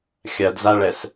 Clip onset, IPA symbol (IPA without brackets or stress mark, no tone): xʲ